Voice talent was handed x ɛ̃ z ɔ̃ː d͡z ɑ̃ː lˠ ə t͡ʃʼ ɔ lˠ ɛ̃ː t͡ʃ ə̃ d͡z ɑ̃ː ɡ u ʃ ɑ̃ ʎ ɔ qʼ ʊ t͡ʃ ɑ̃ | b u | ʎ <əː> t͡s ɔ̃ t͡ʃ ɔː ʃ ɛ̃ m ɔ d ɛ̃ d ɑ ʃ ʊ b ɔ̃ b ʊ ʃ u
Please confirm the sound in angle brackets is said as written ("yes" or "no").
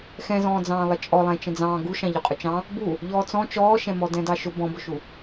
no